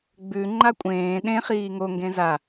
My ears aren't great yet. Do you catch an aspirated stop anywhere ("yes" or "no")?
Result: no